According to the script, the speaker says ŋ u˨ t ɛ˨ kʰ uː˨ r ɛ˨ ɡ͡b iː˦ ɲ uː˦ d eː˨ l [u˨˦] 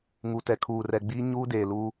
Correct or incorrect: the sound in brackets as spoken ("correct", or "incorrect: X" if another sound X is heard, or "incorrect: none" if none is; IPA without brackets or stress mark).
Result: incorrect: u˦